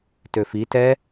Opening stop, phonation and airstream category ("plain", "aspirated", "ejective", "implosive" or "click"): plain